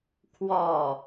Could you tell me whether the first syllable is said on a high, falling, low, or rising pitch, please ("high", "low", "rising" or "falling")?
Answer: falling